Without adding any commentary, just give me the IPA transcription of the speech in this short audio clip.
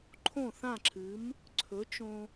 ǃʰõ˥˩θã˥˩ǁʰɨ˩˥m | ǀʰɵ˩˥t͡ʃõ˧

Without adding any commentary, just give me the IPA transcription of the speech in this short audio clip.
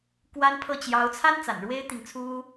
kwa˥npʰɤ˥˩ t͡ɕjɑ˧˥ʊ̯t͡sʰa˥n t͡sa̰˨˩nɻwe˥ɪ̯t̪i˨ŋt͡sʰu˥

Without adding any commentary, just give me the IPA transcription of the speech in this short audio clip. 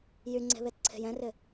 jyŋ͡ǀe̤βetǀʰe̤j ɛ̃rɪ

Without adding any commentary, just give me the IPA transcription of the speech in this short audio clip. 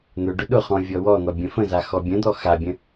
n̪ʊ ɖʊɗʊχɔ̃ vʲɔwɔn̪ɔ bʲə̃fə̃za xɔbʲə̃d̪ɔ xabʲə̃

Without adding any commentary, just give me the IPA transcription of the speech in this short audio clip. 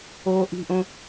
oːʔi̤ʔõ

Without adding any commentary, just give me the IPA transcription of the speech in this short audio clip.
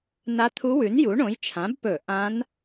na˧˥t̪ʰu˧˥wʉ˩˥n ju˩˥ɳõ˩˥j t͡ʃʰã˩˥bpɵ˧˩˧ ʔã˧˥n

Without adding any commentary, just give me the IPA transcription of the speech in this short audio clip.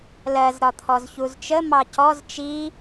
lɜz ɾɒt̪ʰɔzçuzt͡ʃə mɑcɔz t͡ʃi

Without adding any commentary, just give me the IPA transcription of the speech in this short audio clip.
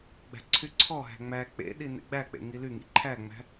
ɡ͡bæ̤ǀʰyǀʰɔɦæ̤ ŋ͡mæ k͡pḛ ɗinḛɡ͡bæk͡pḛ ŋilyŋḭ ǃʰæŋ͡mæ̤

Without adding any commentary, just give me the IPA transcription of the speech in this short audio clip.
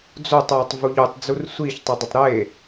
d͡zotˤwotˤ vuʎutˤd͡zur sʷiçtˤʊ dˤʊtˤɾe

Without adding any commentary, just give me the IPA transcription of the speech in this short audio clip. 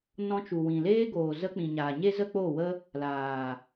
nɔ̃˧t͡ʃu˨ wĩ˨leː˦ɡoː˨zə˧ k͡pĩ˨ɲaː˨ɲe˦zə˦ k͡po˦˨wə˦ | laː˨

